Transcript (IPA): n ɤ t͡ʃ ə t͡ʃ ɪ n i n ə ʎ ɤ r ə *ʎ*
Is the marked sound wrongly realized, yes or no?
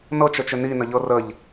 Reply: no